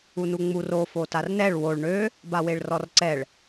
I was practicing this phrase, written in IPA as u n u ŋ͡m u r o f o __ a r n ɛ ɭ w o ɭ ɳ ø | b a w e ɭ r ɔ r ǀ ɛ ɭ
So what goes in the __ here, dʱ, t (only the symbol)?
t